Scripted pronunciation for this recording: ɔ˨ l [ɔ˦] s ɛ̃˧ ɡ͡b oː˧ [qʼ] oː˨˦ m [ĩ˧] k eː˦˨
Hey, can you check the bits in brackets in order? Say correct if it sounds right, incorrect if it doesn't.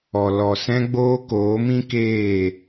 incorrect, incorrect, incorrect

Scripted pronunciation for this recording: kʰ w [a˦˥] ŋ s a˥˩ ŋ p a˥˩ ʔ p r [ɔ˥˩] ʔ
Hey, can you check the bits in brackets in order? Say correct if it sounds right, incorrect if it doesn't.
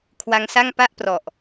correct, incorrect

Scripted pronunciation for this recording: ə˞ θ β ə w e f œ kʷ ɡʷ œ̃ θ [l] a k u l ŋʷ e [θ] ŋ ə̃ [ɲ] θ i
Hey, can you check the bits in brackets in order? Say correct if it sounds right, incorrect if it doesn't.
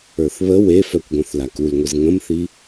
correct, incorrect, incorrect

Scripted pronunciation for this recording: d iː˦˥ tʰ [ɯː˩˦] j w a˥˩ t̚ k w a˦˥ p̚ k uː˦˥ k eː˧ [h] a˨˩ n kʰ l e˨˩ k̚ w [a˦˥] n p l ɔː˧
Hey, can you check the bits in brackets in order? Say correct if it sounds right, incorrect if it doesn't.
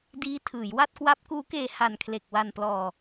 correct, correct, incorrect

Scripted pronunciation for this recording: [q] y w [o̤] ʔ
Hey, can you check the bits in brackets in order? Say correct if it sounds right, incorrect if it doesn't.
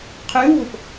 incorrect, correct

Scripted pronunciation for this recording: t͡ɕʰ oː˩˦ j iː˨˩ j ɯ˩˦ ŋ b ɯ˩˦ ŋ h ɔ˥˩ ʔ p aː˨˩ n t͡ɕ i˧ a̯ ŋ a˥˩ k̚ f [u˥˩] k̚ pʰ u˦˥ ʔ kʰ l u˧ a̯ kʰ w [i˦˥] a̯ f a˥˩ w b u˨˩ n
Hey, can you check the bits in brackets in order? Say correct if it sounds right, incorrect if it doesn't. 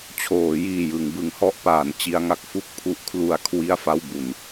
correct, incorrect

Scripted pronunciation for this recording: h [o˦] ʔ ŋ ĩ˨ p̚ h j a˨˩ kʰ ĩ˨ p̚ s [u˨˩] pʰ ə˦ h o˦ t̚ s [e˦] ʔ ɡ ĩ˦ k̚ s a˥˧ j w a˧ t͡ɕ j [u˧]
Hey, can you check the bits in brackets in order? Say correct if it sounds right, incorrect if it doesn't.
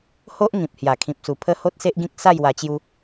correct, correct, correct, correct

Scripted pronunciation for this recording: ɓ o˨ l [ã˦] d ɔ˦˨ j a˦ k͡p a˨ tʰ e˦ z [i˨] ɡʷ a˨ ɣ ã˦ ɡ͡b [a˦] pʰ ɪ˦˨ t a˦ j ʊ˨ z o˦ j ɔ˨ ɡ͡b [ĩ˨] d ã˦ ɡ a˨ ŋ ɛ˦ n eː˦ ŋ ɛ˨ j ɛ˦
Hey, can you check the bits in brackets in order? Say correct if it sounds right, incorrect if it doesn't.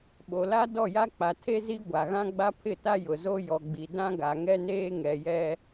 incorrect, incorrect, correct, incorrect

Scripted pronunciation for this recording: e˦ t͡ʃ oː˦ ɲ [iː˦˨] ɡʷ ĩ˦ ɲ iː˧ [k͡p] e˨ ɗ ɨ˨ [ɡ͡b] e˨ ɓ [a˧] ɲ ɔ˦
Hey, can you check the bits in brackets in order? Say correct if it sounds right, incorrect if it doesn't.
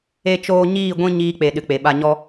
correct, correct, incorrect, correct

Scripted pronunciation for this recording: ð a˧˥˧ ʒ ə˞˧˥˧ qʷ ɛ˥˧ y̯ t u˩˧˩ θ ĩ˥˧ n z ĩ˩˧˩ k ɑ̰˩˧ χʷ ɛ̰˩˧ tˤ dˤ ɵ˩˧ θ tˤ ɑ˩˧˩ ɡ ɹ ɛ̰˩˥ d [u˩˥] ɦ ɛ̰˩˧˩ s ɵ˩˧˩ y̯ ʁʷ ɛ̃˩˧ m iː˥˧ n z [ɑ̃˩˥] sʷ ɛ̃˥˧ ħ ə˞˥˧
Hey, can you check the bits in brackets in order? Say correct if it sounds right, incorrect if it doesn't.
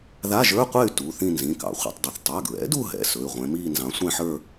incorrect, correct

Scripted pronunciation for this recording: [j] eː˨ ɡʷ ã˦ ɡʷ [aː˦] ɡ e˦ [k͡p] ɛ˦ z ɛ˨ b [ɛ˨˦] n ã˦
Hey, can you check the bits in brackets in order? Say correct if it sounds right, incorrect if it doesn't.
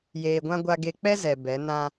correct, incorrect, correct, correct

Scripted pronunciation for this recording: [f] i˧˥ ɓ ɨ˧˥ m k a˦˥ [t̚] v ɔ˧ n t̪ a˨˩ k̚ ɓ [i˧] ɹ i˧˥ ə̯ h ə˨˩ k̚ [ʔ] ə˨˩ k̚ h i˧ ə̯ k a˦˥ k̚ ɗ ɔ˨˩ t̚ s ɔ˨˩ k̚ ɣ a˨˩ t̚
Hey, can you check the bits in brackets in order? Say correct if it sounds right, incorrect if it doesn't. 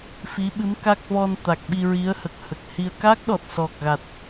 correct, incorrect, correct, incorrect

